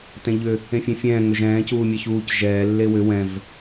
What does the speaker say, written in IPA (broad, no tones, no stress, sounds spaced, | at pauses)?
t ɛ̃ ʎ ʏ | ẽ fʲ ẽ fʲ ɛ̃ː ŋ ʏ ʒ ɛ̃ː c uː mʲ ɛ ç uː c ʒ ɛː lː e w ʏ w ɛ̃ v